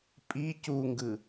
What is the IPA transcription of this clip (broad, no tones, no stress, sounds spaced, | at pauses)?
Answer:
pʼ i c u ŋ ɡ ɯ